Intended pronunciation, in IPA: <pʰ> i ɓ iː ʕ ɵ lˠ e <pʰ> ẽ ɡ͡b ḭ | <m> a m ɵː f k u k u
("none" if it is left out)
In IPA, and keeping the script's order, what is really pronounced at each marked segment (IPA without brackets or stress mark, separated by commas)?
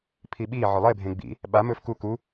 pʰ, bʱ, ɓ